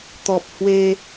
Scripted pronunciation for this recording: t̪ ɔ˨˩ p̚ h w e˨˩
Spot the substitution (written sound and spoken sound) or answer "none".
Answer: e˨˩ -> e˧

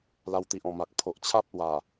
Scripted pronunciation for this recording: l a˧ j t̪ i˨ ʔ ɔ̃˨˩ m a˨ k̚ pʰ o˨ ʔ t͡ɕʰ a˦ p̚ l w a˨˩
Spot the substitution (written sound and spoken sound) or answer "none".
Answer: j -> w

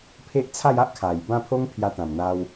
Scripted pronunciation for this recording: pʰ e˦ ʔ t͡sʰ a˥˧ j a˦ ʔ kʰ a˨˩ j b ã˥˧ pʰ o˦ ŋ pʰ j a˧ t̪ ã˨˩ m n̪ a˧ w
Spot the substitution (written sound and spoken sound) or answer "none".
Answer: none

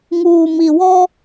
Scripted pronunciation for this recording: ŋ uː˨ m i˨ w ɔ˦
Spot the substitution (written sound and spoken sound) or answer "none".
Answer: none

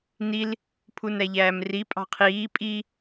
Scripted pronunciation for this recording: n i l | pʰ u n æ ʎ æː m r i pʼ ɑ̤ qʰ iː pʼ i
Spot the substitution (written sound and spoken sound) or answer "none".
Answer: none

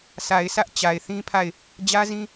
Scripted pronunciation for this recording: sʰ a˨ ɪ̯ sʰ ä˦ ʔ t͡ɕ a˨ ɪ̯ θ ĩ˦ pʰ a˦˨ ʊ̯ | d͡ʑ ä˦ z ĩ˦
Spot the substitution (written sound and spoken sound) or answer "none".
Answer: ʊ̯ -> ɪ̯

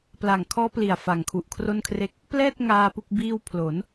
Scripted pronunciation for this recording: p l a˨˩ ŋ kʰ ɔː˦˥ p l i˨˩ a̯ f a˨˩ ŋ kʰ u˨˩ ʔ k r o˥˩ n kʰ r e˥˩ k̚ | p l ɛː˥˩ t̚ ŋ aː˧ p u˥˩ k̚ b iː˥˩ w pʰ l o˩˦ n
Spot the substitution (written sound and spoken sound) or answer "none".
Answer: k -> kʰ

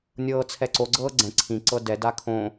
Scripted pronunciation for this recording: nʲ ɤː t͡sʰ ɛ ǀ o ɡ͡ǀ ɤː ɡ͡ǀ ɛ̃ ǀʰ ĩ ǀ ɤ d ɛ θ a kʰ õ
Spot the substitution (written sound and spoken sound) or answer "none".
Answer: θ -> d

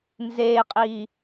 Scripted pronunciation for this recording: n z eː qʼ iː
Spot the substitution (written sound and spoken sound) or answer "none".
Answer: none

